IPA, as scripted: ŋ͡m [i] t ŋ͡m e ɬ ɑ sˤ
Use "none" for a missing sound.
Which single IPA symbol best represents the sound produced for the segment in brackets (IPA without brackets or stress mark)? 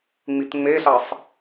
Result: i